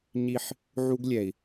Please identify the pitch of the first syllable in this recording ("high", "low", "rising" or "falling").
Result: falling